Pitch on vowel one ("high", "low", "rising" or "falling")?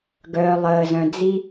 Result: low